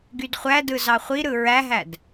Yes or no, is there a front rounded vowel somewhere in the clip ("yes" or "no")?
yes